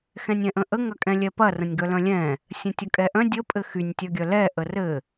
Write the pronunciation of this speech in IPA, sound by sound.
x ɛ̃ nʲ ɛ̃ ʔ ə̃ ʔ ə ŋ ɐ kʼ ɛ̃ lʲ ɛ p ɐ r ə̃ nʲ ɡ œ l œ̃ lʲ ɛ̃ | sʲ ə̃ tʲ ɐ kʼ ɛ ʔ œ̃ dʲ ə pʼ ɘ x y nʲ tʲ œ ɡʲ œ l ɛ ʔ ə r ɘ

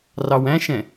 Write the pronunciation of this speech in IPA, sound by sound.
r ɑ w æ̃ ʃ ɛ̃

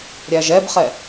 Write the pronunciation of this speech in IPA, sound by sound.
ɾʲ æ ʒ ɛ b χ ɛ

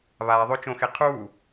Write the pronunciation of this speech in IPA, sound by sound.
β aː ðˤ o t͡ʃ õ x e qʰ uː

